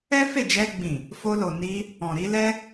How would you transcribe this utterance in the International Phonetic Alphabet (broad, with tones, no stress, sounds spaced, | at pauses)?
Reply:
ɛ˦ f e˦˨ d͡ʒ ɛ˧ ɡ͡b ĩ˨ | f o˧ l o˨ n i˧ | ɔ̃˨ ɾ i˧ l ɛ˦